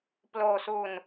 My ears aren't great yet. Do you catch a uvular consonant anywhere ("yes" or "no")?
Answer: no